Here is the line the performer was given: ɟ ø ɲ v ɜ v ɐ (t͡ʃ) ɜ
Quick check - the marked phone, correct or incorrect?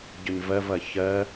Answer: incorrect